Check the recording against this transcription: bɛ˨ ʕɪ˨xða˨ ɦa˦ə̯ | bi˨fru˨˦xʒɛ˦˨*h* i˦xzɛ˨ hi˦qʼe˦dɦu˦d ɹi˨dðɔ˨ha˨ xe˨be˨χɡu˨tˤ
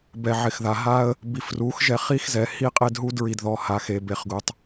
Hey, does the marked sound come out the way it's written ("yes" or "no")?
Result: no